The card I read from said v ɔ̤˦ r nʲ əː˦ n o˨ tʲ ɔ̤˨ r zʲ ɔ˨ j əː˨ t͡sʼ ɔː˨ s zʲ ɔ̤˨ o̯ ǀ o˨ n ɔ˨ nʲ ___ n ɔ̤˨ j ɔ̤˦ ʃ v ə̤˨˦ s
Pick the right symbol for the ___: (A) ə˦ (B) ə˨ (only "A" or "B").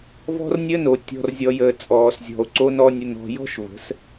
B